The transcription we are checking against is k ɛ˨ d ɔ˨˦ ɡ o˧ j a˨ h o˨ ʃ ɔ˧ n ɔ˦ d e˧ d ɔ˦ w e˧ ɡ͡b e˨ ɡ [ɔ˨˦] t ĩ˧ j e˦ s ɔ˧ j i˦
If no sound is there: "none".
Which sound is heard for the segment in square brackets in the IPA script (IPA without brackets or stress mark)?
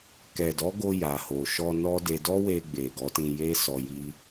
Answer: ɔ˨˦